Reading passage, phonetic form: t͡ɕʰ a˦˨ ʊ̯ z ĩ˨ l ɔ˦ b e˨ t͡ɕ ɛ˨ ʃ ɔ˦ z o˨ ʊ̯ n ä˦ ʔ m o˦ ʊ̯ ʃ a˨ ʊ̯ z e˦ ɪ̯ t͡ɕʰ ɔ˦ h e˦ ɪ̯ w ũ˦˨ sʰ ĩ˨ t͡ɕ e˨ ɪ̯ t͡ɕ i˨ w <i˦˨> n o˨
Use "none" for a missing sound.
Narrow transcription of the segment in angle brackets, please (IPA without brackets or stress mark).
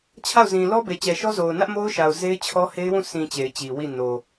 i˦˨